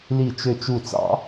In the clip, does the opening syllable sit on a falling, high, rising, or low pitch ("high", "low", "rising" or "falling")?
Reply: falling